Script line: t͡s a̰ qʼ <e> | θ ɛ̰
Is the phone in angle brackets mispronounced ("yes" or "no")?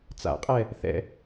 yes